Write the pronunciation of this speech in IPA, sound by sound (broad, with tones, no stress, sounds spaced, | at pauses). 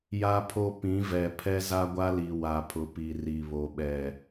j a˦ pʰ o˦ p ĩ˨˦ v ɛ˨ pʰ ɛ˦ z a˦ ɡʷ a˦ l i˨ w a˨ pʰ ʊ˨ p i˨ r i˨ β o˨ ɓ ɛ˨